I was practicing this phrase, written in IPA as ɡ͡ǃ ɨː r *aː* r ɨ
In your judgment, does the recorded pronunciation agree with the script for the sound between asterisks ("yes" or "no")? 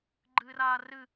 yes